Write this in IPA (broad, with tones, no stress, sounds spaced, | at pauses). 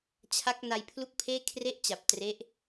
t͡ɕʰ a˦˥ k̚ n a˧ j pʰ l u˥˩ k̚ pʰ eː˥˩ kʰ r e˦˥ ʔ t͡ɕ a˨˩ p̚ t r e˦˥ ʔ